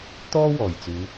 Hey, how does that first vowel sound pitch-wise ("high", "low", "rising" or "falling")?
high